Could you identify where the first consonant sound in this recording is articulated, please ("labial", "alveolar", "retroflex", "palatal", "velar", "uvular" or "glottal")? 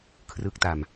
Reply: velar